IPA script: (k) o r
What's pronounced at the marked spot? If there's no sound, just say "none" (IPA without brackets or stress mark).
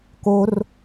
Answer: k